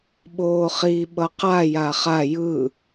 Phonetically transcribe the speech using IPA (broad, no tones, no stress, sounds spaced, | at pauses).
ɓ oː χ i ɓ ʌ q a j a χ a j ɯ